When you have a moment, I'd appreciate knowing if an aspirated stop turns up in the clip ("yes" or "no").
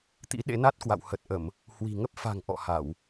no